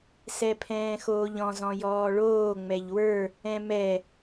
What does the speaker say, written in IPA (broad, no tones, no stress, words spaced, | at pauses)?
sɛpʰɛ̃ːxoːʎɔ̃z ɔ̃jɔːɭoː ŋ͡mɛʎwə˞ | ɛ̃mɛ